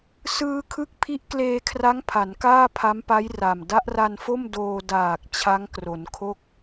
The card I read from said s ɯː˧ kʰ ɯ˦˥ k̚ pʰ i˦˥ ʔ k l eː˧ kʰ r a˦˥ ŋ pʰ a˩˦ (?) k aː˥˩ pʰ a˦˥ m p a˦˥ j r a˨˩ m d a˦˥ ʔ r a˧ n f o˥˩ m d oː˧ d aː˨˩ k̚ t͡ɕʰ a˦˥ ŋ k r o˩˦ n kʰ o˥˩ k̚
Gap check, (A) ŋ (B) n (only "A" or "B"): B